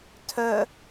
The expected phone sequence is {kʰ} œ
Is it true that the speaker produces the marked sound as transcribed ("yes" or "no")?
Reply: no